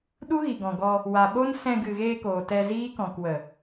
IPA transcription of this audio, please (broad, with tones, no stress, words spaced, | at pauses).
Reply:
ɗu˦ɣi˨ɡɔ̃˨ɡɔ˧ | wa˨ɓo˦n sɛ̃˧ ɡɨ˨ɣeː˧ koː˨tɛ˧ ziː˦ kɔ̃˨kwə˨